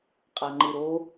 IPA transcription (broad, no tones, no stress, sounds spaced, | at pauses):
qʼ a ŋ͡ǃ ɯ ɾ o